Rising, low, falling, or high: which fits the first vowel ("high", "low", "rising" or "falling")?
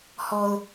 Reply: high